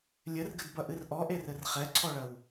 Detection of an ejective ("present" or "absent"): absent